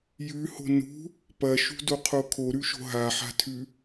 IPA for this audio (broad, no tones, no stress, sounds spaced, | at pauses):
j ʉ h o̤ n ṳ | p ɐ ʃ ṳ d o qʰ o kʰ o ɾ ʉ ʃ o̤ ɦ a ħ a̤ tʰ ʉ